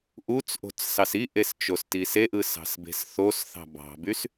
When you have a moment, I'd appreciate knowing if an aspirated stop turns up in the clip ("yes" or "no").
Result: no